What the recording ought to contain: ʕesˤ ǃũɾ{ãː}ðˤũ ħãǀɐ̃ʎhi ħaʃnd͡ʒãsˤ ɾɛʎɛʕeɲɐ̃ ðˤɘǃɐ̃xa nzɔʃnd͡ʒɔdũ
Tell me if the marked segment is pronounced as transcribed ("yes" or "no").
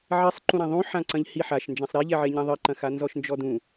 no